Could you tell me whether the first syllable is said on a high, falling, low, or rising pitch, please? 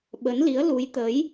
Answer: rising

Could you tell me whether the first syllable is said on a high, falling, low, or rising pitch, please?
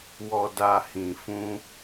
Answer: low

